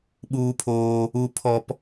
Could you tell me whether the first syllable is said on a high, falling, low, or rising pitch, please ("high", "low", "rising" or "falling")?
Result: high